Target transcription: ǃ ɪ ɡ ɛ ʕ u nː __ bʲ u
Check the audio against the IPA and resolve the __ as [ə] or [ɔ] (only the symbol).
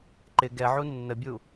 ə